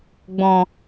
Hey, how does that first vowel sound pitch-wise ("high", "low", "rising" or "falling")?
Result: low